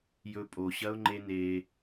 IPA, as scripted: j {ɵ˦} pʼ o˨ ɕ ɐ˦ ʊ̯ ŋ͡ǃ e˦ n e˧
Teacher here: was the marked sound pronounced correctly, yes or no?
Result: no